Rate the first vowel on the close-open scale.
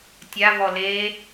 open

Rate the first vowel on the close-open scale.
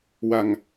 open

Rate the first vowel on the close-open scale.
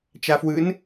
open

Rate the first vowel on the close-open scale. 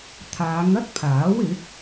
open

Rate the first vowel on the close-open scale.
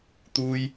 close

